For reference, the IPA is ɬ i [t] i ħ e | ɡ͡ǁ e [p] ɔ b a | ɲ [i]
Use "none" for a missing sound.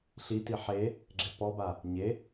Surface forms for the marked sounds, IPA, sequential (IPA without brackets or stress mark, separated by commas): t, p, e